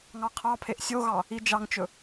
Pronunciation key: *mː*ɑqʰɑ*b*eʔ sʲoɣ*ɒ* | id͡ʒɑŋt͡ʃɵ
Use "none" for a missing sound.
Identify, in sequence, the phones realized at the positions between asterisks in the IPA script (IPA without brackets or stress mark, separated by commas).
ŋ, pʰ, ɑ